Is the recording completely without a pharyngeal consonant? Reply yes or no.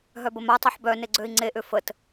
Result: no